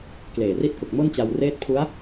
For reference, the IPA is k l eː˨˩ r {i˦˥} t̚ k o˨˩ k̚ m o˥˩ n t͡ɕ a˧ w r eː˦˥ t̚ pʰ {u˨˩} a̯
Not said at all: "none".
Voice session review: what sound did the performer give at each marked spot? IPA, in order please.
i˦˥, u˦˥

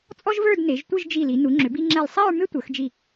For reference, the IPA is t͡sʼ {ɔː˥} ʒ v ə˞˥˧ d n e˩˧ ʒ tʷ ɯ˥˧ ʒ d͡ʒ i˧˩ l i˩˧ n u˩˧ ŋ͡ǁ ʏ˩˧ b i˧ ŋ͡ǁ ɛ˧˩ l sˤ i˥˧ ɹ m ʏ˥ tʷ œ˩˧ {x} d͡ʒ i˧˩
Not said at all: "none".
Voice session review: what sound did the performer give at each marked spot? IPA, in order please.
ɔ˥, x

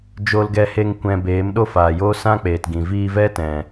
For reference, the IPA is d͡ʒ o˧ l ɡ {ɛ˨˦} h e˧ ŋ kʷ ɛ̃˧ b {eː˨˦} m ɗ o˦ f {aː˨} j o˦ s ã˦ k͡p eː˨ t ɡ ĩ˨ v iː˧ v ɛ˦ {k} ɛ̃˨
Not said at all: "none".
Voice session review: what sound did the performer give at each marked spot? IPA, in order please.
ɛ˧, eː˨˦, aː˨, t

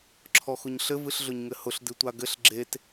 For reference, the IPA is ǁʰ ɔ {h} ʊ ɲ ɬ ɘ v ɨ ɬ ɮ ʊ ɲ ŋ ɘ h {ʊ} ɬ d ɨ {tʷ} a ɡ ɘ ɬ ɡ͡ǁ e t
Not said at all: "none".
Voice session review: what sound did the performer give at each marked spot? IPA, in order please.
x, ʊ, tʷ

